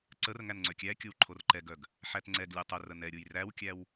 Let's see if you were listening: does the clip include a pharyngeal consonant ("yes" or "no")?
yes